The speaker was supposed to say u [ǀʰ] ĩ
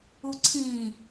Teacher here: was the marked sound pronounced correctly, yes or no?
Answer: yes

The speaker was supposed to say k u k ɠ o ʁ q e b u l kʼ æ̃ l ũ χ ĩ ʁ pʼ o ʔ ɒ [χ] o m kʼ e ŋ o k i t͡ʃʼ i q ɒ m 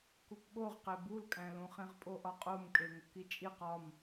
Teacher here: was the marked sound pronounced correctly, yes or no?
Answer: no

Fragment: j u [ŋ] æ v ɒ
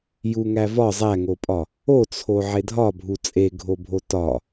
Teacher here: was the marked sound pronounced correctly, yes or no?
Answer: yes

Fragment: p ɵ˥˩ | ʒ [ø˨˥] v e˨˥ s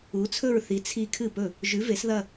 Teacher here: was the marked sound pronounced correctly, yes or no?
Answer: no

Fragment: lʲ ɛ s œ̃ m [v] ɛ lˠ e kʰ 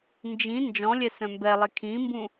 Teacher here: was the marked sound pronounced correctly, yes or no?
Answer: no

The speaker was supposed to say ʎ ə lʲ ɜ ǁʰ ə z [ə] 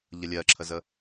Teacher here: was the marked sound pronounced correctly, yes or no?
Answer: yes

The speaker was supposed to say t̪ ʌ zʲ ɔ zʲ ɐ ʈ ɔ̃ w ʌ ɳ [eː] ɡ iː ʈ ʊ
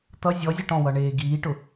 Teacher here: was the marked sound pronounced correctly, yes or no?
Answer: yes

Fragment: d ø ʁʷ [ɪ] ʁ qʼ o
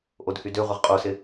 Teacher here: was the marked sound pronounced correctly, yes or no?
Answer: yes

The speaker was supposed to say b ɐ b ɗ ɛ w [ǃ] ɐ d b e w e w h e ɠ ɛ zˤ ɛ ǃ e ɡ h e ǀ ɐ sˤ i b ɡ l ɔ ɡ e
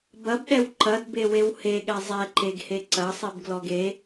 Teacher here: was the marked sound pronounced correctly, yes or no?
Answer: yes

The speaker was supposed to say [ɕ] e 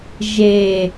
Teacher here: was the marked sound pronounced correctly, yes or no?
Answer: no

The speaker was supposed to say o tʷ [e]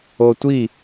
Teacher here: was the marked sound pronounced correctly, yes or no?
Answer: no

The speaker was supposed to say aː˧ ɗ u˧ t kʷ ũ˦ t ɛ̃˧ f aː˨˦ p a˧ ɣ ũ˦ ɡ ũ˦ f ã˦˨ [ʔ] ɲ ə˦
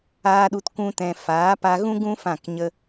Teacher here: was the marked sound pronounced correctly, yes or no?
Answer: no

